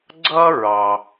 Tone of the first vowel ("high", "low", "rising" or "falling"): high